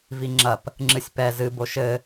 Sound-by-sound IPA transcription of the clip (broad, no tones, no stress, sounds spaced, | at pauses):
v i ŋ͡ǁ ɐ p | ŋ͡ǁ ɨ sʲ p ɛ z ɨ b o ʃ ɘ